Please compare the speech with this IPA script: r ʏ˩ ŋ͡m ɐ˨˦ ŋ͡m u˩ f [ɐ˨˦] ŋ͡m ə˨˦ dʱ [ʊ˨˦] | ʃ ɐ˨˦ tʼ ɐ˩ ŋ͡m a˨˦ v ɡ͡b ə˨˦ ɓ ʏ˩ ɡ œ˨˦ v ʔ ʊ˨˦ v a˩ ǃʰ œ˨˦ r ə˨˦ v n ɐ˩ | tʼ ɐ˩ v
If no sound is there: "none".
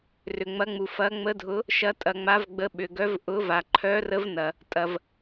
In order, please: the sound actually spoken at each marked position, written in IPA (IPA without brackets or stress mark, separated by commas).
ɐ˨˦, ʊ˨˦